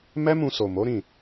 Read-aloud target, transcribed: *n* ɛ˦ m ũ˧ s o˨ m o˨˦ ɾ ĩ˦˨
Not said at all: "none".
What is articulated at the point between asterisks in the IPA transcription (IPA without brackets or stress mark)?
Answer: m